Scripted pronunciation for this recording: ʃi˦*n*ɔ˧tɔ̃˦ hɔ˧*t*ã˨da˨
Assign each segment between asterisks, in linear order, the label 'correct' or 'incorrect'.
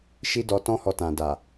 incorrect, correct

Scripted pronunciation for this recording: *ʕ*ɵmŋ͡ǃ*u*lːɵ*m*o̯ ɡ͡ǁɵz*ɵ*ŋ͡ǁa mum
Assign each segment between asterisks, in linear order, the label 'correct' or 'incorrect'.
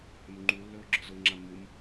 incorrect, correct, incorrect, incorrect

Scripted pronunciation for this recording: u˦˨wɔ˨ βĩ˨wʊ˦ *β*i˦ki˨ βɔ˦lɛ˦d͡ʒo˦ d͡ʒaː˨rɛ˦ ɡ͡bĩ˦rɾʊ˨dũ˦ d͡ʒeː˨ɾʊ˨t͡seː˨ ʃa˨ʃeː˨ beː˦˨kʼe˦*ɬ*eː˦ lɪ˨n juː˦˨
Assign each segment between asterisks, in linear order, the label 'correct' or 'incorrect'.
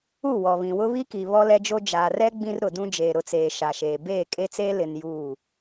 correct, incorrect

